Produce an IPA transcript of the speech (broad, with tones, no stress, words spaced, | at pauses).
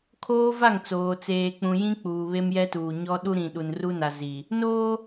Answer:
kʰoː˦va˦˨ŋt͡soː˨ t͡seː˨k͡pũ˨jĩ˦ k͡puː˨βe˦mjɛ˦tuː˨ ɲɔ˦ ɗu˦ɾĩ˨ ɗu˨nru˦na˨ zi˨ | noː˦